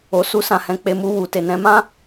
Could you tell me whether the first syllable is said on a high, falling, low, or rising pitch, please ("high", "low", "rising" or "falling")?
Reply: low